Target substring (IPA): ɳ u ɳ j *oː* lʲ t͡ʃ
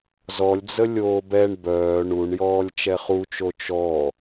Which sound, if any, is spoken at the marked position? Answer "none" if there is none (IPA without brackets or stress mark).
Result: ɔː